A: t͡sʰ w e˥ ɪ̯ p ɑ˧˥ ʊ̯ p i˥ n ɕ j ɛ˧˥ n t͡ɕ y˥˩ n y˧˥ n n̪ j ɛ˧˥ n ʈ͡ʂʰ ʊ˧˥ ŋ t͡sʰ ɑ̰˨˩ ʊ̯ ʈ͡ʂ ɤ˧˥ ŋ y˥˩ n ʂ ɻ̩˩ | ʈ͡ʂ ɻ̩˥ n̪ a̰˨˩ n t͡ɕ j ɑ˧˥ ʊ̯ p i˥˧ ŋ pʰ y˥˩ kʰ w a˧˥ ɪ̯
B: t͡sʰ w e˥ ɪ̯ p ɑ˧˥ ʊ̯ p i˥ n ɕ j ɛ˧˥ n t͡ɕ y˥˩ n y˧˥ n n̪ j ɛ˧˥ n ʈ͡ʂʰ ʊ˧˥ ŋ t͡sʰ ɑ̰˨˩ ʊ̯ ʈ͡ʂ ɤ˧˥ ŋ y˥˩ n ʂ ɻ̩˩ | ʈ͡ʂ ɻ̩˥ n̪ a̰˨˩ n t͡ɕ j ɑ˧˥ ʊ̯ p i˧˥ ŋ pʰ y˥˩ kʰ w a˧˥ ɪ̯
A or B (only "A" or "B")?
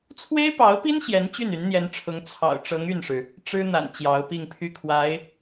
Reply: A